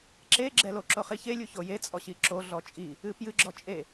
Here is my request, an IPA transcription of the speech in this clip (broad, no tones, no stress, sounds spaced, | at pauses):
ǁ e ɡ͡ǁ ɛ l o ǁ o χ i ç e lʲ u ç o j e t͡sʼ ɔ ɕ i ǁ o ɮ ɔ t͡ʃʼ i | ɨ p j ɨ ɡ͡ǁ ɔ t͡ʃʼ e